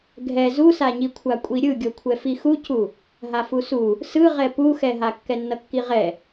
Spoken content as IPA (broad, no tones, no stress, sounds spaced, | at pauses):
ɡʱ ɛ z u s a ɲ i kʷʰ a kʷʼ i ɾʲ ɯ ɡʲ o kʷʰ ɛ f i x u c u | ɦ a f u s u | s ɯ ʁ ɛ p u x ɛ ɦ a kː ɛ nː ʌ kː i ʁ ɛ